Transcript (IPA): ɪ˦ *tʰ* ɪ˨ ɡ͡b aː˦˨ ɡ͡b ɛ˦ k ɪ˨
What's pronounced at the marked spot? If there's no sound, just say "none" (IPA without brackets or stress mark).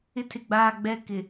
tʰ